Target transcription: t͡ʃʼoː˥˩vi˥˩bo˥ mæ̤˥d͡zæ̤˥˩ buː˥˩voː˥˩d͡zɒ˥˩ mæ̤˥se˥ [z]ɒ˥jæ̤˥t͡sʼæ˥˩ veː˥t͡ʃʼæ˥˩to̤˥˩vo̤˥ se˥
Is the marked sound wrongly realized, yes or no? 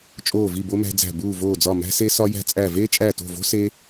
yes